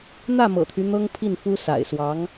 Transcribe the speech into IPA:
n̪ ä˥˩ m ɤ̰˨˩ t̪ʰ y˦ n̪ ɤ˥ ŋ pʰ i˥˩ n f u˥ s a̰˨˩ ɪ̯ s w ɑ˧˥ ŋ

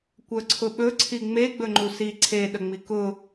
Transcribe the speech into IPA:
kʷ œ ǀʰ ʊ ɓ ɵ ǀʰ i ŋ͡m e ɡ͡b ɵ ŋ͡ǃ u s i ǀʰ e ɗ ə ŋ͡m i k ʊ

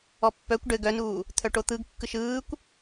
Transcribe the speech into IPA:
ɔ pː œ kʷ ɖ ɘ ɡ œ n uː | t̪ʰ œ ʈ o t̪ ɯ ɡ kː ɯ ʃ ɯː kʷ

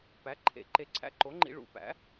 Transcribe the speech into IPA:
p æ˩˥ ǃʰ ḛ˨˩˦ ǃ e˨˩˦ ǀʰ æ̰˧ ǃ o˩˥ ŋ͡ǃ ḭ˧ ɭ ṵ˨˩˦ p æ̰˩˥

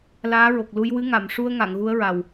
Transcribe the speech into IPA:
l aː˧˥ ɹ o˨˩ k̚ l u˧ j w ɨ˧˥ ŋ a˨˩˨ m ʂ u˧ ə̯ ŋ a˨˩˨ ŋ ɣ u˧˥ ə̯ ɹ a˨˩ w

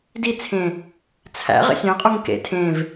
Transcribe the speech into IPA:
d i t͡sʰ ẽ | t͡sʰ æ̰ ʁ ḛ sʲ æ̃ qʼ u ŋ k ḛ tʰ ẽ v

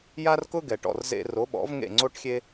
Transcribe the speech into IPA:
j a˥ r k ʊ˥ ɡ ɛ˩ ʈ ɔ̰˥˩ r z ḛ˧ r o˩˥ ɓ ɔ̰˩˥ v ŋ ḛ˥˩ ŋ͡ǀ o˥ ʈ xʲ e˥

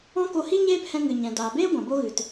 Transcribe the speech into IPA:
ɔ̃˦ k o˧ h i˦ ɲ eː˦ p h ɛ̃˧ ŋ ɨ˨ ɲ ɛ̃˨ d aː˨ b eː˦ ɡʷ ã˨ b o˦ ɣ ɨ˨ t

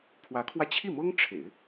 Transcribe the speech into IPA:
pʰ w ä˧˥ kʰ w ä˧ t͡ɕʰ i˥˩ m ɤ˥ ŋ ʈ͡ʂʰ ḛ˨˩˦ ɪ̯

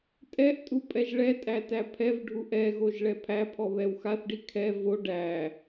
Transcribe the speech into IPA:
tʼ ɛ ʔ tʼ u pʼ ɛ ʒ ɭ ɛ tʼ æ t æ pʰ ɛ v ɖʱ u ʔ ɛ ɣ o ʒ ɭ ɛ pʰ æ pʰ ɔ β ɛ w x a θ ɖ i kʰ ɛ v o ɖ æ

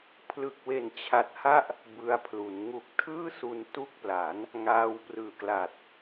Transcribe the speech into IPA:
pʰ l ɯ˨˩ k̚ w e˨˩ n t͡ɕʰ a˨˩ t̚ h a˥˩ ʔ | b ɯ˧ a̯ pʰ l u˩˦ n ŋ u˨˩ k̚ tʰ ɯː˥˩ s u˧ n t u˦˥ k̚ p l a˩˦ n | ŋ aː˧ w p r ɯː˩˦ k l a˨˩ t̚

